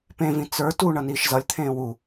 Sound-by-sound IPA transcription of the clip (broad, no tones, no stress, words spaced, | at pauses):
pẽvĩ t͡sə˞ tu ɳʌniːʃzʌlʲt̪ʰẽː wu